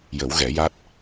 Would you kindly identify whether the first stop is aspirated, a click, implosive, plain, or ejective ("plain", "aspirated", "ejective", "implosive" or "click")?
plain